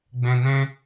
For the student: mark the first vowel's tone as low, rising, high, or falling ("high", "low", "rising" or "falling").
low